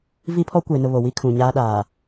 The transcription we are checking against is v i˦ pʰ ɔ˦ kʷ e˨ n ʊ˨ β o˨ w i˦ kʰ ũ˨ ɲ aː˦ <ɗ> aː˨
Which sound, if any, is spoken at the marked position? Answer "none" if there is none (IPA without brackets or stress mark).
ɗ